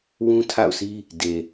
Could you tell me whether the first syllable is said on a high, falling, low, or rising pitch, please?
high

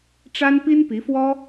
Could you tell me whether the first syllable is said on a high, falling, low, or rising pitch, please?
high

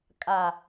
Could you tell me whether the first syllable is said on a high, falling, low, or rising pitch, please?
low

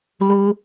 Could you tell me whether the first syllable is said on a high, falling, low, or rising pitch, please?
high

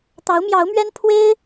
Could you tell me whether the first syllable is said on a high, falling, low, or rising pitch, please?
rising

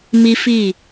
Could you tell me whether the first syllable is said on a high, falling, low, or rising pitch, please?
high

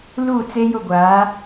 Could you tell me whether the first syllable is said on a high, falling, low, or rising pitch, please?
falling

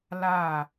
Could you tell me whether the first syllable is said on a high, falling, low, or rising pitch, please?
falling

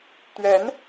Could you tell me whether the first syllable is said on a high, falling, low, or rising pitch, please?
rising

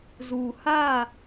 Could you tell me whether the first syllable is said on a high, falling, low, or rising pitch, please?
low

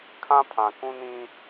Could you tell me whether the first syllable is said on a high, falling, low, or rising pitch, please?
high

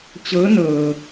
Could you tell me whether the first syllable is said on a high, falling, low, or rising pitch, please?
rising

